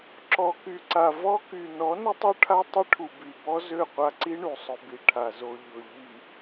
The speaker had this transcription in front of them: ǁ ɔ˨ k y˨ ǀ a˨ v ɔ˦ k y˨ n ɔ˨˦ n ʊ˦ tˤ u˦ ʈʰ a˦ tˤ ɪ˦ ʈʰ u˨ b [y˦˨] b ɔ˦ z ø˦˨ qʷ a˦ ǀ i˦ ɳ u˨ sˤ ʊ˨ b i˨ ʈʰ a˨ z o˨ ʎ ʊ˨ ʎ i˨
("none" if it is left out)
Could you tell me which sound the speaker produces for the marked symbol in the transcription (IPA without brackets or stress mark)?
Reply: y˨